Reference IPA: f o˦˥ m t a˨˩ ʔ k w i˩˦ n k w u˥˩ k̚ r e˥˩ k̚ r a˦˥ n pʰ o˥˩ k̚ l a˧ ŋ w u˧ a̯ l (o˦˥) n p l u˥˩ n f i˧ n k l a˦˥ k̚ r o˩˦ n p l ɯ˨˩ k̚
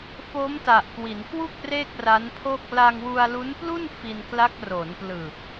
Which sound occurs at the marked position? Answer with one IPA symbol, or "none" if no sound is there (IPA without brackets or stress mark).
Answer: u˦˥